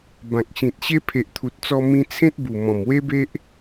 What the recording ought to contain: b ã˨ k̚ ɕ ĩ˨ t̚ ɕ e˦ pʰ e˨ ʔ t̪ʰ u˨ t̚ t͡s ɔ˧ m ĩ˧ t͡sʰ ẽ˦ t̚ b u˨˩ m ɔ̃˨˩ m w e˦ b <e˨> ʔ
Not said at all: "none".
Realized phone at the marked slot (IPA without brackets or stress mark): e˦